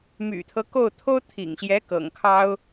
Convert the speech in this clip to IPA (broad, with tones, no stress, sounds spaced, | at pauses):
m y̰˨˩ t̪ʰ ɤ˦ k o˥˩ ʊ̯ t̪ʰ o˥ ʊ̯ t̪ʰ ḭ˨˩ ŋ ɕ j ɛ˧˥ k ɤ̰˨˩ ŋ kʰ ɑ˥ ʊ̯